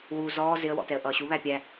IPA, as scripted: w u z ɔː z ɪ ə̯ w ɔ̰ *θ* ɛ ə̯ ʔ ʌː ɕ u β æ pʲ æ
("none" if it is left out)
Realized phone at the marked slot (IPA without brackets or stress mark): t